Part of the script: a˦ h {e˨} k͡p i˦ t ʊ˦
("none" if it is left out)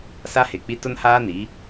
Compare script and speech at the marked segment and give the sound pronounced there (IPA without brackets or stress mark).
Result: e˨